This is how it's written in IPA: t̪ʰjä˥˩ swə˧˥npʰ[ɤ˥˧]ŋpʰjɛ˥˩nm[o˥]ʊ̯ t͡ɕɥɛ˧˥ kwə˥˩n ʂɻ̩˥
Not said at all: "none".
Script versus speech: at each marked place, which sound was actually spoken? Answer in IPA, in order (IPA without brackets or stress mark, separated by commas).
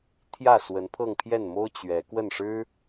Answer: ɤ˥˧, o˥